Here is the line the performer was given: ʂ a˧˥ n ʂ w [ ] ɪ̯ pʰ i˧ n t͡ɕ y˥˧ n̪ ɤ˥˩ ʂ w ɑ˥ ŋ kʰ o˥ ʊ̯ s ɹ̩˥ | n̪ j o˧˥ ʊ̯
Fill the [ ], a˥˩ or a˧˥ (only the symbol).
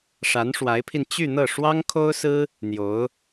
a˧˥